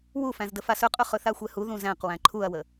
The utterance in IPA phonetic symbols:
w u f æ̃ z d ə f a s ɵ qʼ ɵ χ ɵ θ a xʷ ɛ h u ð ũ z æ̃ q w æ̃ ǃʰ u ɐ̯ w ə

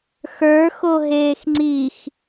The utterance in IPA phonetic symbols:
x ə˞ x o ɦ eː x ŋ͡ǀ i x

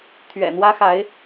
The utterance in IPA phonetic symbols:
t̪ʰ ɥ ɛ̰˨˩ n̪ w ä˥ x a˧˥ ɪ̯

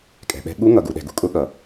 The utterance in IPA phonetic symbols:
kʼ ɛ̤˨ ɓ ɛ̤˧˥ ɠ u˧˥ ŋ ʌ˨ ɡ u˨ ɗ ɛ̤˨ ɡ ṳ˨ kʼ ʊ˧˥ ɠ ʌ˨

